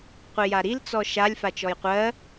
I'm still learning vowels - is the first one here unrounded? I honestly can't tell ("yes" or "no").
yes